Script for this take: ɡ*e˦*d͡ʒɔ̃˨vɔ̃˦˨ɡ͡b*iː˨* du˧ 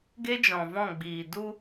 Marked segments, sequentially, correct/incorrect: correct, correct

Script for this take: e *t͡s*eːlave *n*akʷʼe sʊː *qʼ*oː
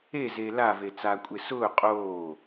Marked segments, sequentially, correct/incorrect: incorrect, incorrect, correct

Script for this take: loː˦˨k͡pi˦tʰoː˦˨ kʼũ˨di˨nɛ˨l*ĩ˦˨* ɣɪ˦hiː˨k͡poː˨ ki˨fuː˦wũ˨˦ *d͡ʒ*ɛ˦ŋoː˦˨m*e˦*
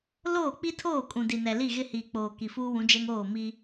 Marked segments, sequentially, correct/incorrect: incorrect, correct, incorrect

